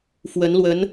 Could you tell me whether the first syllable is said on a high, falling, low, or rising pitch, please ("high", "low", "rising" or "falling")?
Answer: rising